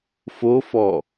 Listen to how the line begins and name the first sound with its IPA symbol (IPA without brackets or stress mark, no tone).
f